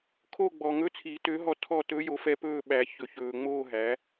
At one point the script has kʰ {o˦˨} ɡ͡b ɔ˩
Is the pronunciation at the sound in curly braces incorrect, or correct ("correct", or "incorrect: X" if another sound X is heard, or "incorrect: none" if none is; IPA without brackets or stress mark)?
correct